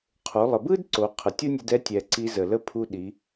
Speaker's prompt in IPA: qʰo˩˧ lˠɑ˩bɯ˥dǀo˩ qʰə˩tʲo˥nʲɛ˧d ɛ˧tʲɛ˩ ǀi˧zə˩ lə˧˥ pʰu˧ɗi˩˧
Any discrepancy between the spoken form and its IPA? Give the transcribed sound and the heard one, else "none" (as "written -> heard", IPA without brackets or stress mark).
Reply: ɑ˩ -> ə˩